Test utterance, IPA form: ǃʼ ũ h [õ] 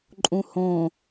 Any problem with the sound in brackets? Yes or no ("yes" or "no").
no